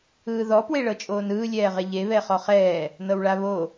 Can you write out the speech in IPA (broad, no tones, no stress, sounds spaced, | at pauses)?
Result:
ɯː ð ɔ p w e ɭ ɤ t͡ʃʼ oː n ɯː lʲ ɛː ʁ e ʎ e β ɛ χ ɔ χ ɛː | n ɤ w ɭ a β o